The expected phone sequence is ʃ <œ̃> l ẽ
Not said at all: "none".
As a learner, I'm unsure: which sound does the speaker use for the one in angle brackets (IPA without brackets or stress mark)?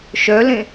œ